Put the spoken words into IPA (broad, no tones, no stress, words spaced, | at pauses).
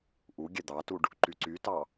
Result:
ʔu ɡʲɛd̪ɑtuɖ | ǃyǀytɑ